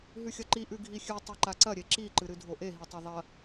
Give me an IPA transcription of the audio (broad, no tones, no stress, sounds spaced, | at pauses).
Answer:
ɦ ʉ xʲ ɐ ǃ i ʔ ʉ ɡʱ i xʲ ʉ tˤ e ǃ a ǀ ɐ ɾʲ e ǁ i ǃ ɨ ɾ ɨ dʱ o ʔ e ɦ i tˤ e ðˤ ɐ